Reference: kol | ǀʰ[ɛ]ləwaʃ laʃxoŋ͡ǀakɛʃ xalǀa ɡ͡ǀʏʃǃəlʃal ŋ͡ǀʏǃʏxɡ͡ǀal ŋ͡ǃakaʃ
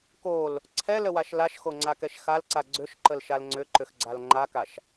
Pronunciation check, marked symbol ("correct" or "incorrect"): correct